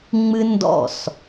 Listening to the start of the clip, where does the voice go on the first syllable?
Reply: high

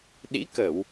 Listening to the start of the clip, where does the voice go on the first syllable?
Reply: rising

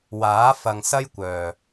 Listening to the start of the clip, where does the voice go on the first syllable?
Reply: rising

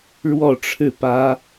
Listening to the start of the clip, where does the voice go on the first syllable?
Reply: falling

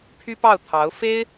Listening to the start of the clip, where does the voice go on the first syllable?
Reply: high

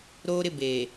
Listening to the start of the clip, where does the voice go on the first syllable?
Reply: high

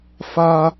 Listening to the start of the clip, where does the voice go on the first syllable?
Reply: high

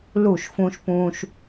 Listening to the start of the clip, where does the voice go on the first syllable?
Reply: falling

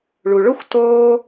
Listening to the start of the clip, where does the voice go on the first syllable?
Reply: low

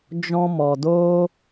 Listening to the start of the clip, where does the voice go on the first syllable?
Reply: high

